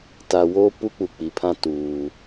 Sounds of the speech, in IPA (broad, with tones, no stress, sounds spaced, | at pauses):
t a˨ w oː˦ p u˦ k͡p u˨ k͡p i˨ pʰ ã˦ t uː˨